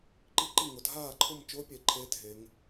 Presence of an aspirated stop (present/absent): present